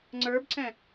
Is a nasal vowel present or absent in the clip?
present